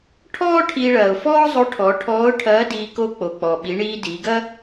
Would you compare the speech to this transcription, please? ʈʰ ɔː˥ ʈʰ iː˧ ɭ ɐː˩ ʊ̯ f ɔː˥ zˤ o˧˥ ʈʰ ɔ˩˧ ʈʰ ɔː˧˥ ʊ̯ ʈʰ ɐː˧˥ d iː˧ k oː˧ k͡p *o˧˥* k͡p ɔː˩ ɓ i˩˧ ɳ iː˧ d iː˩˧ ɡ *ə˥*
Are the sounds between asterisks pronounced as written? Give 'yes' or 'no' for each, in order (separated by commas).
no, no